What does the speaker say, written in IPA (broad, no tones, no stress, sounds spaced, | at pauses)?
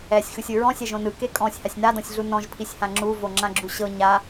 ɛ sʲ x ɯ sʲ ɯ ɹ ɔ̃ sʲ ɛ ʒ õ n ɯ k e kʼ ɔ̃ sʲ h a sʲ n a d ɔ̃ sʲ ɮ u n ɔ̃ ʒ pʰ i sʲ h ã ŋ͡ǁ u v o ŋ͡ǁ ã ɡ͡ǁ u ɕ ɤ ɲ a